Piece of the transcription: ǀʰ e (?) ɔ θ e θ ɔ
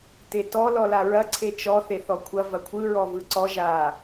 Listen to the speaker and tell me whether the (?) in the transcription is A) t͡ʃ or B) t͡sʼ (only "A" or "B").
A